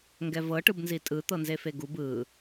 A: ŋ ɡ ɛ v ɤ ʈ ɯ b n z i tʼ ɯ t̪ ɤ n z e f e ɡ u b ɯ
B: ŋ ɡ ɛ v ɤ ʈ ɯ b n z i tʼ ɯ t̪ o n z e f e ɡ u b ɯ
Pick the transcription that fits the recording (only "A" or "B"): A